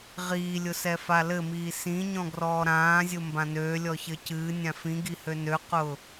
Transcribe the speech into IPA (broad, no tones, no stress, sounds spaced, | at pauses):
ʁ iː lʲ ʊ s ɛ f a l ɘ m iː s ĩ ɲ ɔ̃ ɡ r ɔː ɾ ãː zʲ ʊ m b ã n øː lʲ ɔ ç ɘ c ɨː nʲ ã f ĩ ɡ i h ø n ø q ʊː